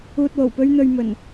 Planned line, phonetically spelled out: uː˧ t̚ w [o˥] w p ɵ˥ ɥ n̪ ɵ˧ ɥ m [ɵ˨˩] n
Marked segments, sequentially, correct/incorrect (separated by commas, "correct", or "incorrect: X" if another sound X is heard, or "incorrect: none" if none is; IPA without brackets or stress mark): incorrect: o˨˩, correct